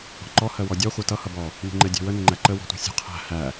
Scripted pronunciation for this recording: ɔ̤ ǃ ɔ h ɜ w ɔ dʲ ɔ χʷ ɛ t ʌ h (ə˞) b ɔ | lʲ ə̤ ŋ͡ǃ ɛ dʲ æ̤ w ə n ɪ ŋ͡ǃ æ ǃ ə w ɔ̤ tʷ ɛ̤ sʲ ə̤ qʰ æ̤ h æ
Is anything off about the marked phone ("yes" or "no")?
yes